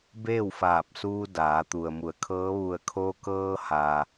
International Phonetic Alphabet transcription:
b eː˥˨ w f aː˧˩ p̚ s uː˧ d aː˩˧ t̪ u˩ ə̯ m u˩˧ ə̯ kʰ ɤː˧˥ ʋ u˧˩ ə̯ kʰ o˧ k ɤː˧ h aː˩

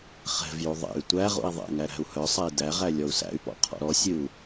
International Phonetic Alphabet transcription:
χ ɛ̤ v j u ðˤ ḛ y̯ tʷ æ ʁ ṵ i̯ ðˤ ɛ̰ ŋ æ ɾ æ̤ u̯ h œ sˤ ɛ i̯ d æ ʁ æ lʲ ɔ u̯ s æ̰ y̯ p ɔ̰ qʰ ɔ̰ ɾ ɔ sʲ ɨ u̯

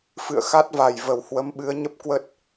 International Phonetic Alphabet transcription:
f ɨ̰˧˨ ə̯ x a˦˥ t̚ v a˨˩ j v ə˨˩ w h w ə˨˦ m ɓ ɨ˨˦ ə̯ ɲ ə˦˥ p̚ k w ə˦˥ t̚

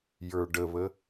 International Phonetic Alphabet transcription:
j ə˞ ɖ ə β ə

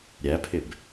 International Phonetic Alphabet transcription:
ɾʲ æ pʰ ɪ b

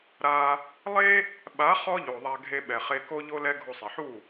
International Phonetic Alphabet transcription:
ɾ a˧ | lˠ e˦ | ɓ a˨˦ χ ɔ˦ ʎ o˨ ðˤ a˧ ɡʱ e˧ ɓ ɛ˨ χ e˧ k o˦ ʎ o˦ l ɛ˦ ɡʱ o˧ sˤ e˨ ħ u˦˨

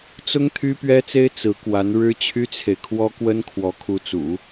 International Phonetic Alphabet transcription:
t͡s ʊ˥ ŋ t̪ʰ y˥ p ɥ ɛ˥ t͡s e˥ ɪ̯ t͡s ɹ̩˧˥ k w a˧˥ n ɻ ɻ̩˥ t͡ɕʰ y˥ t͡sʰ e˨ ɪ̯ kʰ w ɔ˥ k w ə˥ n kʰ w ɔ˧˥ kʰ u˧˥ t͡s ṵ˨˩˦

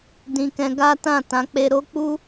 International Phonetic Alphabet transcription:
d ĩ˧ k ɛ̃˧ ɡ a˦ t ã˦˨ t ã˨˦ k͡p e˧ ɾ o˦ k͡p u˦

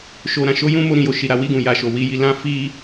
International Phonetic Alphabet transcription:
ʃ o˧ ɾ ã˧ ʃ o˦ j ũ˦ m o˧ ɾ ĩ˨ j o˨ ʃ i˨ ɾ a˨˦ w i˦˨ ɡ ũ˨ j a˨ ʃ o˨ w i˨˦ j i˧ l ã˦ f i˦

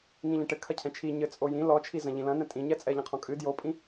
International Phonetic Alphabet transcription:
ŋ ĩ ʎ ɛ̃ ʈ ɘ kʰ ɐ cʰ ɛ̃ t͡ʃʰ i ɲ ɘ t͡sʼ o j ĩ l ɔ t͡ʃʰ i z ɐ̃ ʎ ĩ l ɐ̃ n ɛ̃ tʼ ĩ ɲ ɛ t͡sʼ ɛ ʎ ɐ̃ qʰ ɔ̃ kʼ ɨ d j o pʼ ĩ

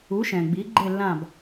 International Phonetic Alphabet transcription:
u˩˥ ʃ ɛ̃˩ ɡ͡b i˩˥ ɡ͡ǃ e˥˩ lː ã˥˩ b

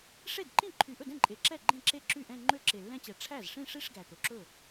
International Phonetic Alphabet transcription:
ʂ e˥˩ d ǃ ĩ˥˩ ǃʰ y˨˩ ʔ ɵ˥˩ d ɛ̃˥˩ ǃʼ e˨˩ ǁ ɛ˥˩ ɡ͡ǃ ẽ˥˩ ǁ e˥˩ ǁ y˥˩ ʔ ɛ̃˥˧ ŋ͡ǃ ø˥˧ ǁ e˨˩ lː ɛ̃˥˧ t͡ɕ ɛ˨˩ ʈ͡ʂʰ æ˥˩ z ʂ ĩ˥˧ ʂ i˥˧ ʂ ɡ æ˨˩ t̪ o˨˩ ǁ ɵ˥˩

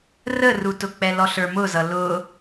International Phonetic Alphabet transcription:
r ə r u t ʊ k͡p ɛ l ɔ ɬ ə˞ m ʊ z ʌ l ʊ

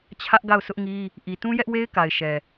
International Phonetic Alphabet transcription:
t͡ɕʰ ä˦ ʔ ɡ a˦˨ ʊ̯ sʰ ʊ˦ ʔ ŋ i˦ | ʔ i˨ t ũ˦ j ɛ˦ ʔ w e˦ ɪ̯ k a˨ ɪ̯ ʃ ɛ˨

